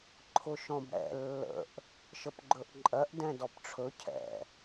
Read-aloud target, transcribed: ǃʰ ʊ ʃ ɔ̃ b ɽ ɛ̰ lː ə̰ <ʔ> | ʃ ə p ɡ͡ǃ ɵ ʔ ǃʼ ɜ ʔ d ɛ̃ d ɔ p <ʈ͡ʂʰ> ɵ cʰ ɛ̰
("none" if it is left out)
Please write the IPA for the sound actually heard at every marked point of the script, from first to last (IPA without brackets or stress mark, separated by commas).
ʔ, ʈ͡ʂʰ